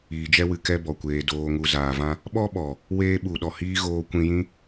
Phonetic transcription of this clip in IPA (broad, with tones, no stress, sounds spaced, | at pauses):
iː˨ d͡ʒ ɛ˦ w ɨ˨ k ɛ˧ b ɔ˨ kʷ eː˨ d oː˨ ŋ u˨ z aː˨ v ã˦ | ɓ ɔ˦ ɓ ɔ˨ | w eː˦ ɓ u˨ ɗ ɔ˨ h iː˦ ɣ oː˧ kʷ ĩ˧ j ĩ˦